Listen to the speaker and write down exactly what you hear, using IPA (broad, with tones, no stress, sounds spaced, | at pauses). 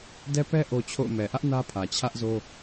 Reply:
d ɛ˦ p ɛ˦ ʔ o˦ t͡ɕʰ o̰˦˨ ʊ̯ m ɛ˨ ʔ ä˦ ʔ n ä˦ pʰ ä˨ t͡ɕʰ ä˦ ʔ z o˦